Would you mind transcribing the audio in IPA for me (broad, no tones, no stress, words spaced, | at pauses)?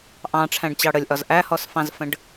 ʔɑ̃ʈ͡ʂʰæ̃ɖt͡ɕɑ ɽəlʲʔɒz ʔæhɔsfɑ̃zfə̃ɖ